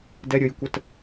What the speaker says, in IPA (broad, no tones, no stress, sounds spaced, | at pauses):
d ɛ ɾʲ ə j kʷ ə t